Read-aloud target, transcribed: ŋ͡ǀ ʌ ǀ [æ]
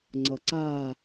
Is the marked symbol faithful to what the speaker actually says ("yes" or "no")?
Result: no